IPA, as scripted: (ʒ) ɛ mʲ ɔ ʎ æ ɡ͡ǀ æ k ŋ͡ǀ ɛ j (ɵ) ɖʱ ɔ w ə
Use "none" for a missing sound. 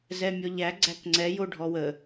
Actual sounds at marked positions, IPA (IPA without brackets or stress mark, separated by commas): z, o